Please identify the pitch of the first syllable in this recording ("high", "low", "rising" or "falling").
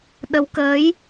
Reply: rising